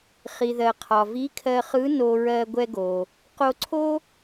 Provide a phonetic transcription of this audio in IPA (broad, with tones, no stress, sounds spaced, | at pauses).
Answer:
χ i˩ ð ɜ˩ qʰ ɒ˩ v i˧˥ kʰ ɜ˧ χ ɯ˧˥ n o˧ ɹ ɜ˧ ɡʷ ɛ˧ ɡ o˩ | q o˧ ǀʰ o˥